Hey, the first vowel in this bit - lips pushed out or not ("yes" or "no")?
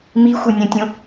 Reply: no